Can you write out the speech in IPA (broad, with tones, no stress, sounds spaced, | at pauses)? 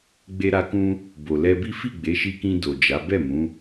ɡ͡b e˧ ɾ a˧ k ũ˦ | b o˨ l ɛ˧ b i˦ f i˦˨ ɡ͡b e˨˦ ʃ i˧ k ĩ˧ d o˨ d͡ʒ a˨˦ b ɛ˦˨ m ũ˨˦